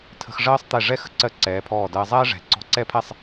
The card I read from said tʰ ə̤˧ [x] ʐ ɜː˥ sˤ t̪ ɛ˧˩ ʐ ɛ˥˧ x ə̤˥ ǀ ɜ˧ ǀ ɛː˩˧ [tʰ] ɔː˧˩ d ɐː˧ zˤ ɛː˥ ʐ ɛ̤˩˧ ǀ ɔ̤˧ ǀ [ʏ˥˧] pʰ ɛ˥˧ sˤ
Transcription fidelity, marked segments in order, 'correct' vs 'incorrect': correct, incorrect: pʰ, incorrect: ɛ˥˧

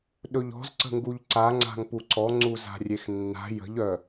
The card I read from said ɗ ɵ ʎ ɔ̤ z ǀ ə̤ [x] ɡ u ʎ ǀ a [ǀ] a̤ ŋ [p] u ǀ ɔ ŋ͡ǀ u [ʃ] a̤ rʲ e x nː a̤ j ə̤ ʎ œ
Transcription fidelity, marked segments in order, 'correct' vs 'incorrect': incorrect: ŋ, incorrect: ŋ͡ǀ, correct, incorrect: z

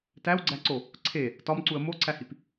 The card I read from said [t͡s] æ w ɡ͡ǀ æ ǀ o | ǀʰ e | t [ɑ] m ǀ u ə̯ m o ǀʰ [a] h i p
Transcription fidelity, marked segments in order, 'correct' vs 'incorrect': incorrect: t, incorrect: ɒ, incorrect: æ

